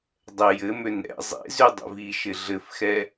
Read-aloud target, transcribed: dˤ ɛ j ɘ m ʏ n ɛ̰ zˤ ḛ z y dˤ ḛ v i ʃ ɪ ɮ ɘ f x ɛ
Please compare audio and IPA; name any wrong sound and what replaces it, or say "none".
none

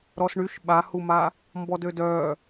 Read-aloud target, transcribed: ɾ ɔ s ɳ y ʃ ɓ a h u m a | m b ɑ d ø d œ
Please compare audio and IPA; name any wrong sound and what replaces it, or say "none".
ɑ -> ɔ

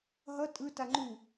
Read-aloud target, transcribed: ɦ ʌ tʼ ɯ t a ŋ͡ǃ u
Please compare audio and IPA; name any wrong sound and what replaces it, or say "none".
none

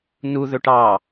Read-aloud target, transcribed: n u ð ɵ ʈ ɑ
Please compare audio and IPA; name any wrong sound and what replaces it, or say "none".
none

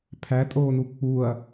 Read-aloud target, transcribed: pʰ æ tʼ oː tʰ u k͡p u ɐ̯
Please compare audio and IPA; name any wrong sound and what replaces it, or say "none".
tʰ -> n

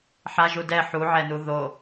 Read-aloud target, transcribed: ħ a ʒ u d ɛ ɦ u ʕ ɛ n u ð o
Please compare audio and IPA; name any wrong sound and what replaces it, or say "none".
ɦ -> ħ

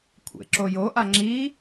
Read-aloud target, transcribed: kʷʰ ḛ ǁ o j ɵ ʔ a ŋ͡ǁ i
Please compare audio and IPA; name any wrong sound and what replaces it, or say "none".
ɵ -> o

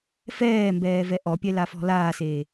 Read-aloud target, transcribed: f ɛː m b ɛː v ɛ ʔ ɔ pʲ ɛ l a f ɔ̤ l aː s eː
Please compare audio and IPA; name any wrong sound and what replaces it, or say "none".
none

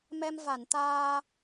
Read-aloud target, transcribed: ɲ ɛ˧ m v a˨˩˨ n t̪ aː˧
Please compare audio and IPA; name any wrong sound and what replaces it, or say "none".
ɲ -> m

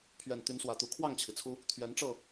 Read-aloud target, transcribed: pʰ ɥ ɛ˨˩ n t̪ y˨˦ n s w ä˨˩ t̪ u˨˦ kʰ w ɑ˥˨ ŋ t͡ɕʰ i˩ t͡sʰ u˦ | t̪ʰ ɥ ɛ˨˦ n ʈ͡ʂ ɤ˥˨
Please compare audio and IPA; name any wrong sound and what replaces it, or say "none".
none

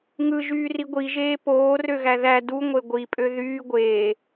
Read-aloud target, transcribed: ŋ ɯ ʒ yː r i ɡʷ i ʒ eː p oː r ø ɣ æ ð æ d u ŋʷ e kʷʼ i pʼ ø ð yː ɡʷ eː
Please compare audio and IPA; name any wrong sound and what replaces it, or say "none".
kʷʼ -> ɡʷ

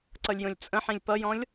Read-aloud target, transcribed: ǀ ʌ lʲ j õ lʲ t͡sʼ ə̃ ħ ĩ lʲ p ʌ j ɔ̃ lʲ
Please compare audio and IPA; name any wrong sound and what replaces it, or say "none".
none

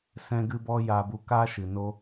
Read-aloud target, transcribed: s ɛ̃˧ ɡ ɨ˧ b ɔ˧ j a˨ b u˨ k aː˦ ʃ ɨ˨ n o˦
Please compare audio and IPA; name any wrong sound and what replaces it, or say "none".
none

